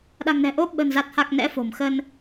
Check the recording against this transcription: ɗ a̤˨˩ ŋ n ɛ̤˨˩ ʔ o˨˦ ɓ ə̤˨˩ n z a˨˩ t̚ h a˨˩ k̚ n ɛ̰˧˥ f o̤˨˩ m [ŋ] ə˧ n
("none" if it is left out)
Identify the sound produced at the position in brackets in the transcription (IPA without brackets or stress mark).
x